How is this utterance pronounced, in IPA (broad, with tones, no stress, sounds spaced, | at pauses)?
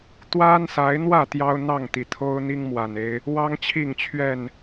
t̪ w a˦ n s a˨˦ ɪ̯ n̪ w ä˥˨ t̪ j ɑ˦ ʊ̯ n̪ ɑ˥˨ ŋ t̪ i˩ t̪ʰ o˦ ʊ̯ n̪ i˦ ŋ m w a˨˩ n e˦ ɪ̯ | w ɑ˦ ŋ t͡ɕʰ i˥˨ ŋ t͡ɕʰ ɥ ɛ˥˨ n